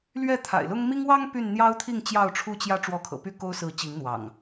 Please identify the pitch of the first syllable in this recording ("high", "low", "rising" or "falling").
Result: falling